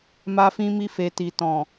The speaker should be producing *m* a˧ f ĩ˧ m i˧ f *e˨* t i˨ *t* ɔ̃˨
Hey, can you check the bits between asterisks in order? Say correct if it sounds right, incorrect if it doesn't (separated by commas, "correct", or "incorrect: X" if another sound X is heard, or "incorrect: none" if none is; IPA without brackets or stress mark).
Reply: correct, correct, correct